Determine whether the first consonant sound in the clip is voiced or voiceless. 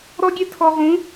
voiced